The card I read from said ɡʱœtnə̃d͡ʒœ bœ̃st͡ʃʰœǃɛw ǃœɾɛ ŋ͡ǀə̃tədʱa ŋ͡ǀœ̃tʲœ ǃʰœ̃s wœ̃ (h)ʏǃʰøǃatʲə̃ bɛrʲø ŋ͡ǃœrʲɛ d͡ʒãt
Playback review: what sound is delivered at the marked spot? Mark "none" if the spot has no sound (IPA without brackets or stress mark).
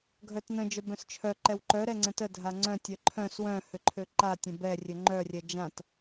h